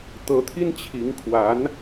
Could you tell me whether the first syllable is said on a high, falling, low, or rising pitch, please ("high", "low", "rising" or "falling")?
rising